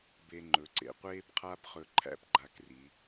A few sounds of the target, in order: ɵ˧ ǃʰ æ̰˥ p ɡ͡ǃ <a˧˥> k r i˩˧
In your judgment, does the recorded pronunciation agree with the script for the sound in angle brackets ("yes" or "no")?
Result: yes